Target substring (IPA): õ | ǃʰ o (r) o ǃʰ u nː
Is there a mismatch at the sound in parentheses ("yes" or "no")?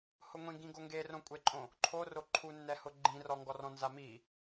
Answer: no